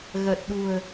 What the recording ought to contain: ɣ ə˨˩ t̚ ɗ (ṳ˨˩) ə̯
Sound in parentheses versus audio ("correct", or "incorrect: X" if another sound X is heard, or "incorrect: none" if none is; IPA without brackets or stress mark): correct